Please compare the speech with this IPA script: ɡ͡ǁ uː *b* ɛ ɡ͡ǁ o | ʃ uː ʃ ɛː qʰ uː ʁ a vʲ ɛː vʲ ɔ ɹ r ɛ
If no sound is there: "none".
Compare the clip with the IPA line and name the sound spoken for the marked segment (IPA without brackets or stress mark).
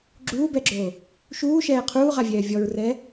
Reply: b